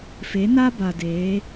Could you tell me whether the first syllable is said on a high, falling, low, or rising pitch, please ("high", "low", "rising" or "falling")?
rising